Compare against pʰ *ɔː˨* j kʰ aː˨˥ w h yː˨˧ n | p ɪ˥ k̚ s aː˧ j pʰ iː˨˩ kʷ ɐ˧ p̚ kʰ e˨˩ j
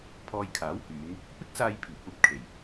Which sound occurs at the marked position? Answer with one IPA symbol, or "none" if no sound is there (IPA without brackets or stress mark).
ɔː˧